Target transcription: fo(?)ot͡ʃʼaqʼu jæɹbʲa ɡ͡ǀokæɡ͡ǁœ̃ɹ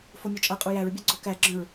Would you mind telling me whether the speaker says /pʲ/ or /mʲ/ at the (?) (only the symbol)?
mʲ